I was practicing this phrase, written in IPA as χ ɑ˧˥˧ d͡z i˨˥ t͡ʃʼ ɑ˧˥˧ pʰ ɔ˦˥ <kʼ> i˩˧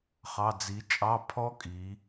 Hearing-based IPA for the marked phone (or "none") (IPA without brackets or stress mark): kʼ